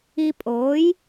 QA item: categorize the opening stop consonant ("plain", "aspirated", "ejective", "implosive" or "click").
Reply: ejective